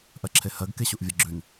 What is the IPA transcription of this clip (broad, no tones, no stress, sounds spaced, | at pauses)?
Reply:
ʔ ɜ ǁʰ e h ɜ ɡ k e ɕ u ʔ vʲ ɜ ɡ͡ǁ ʉ n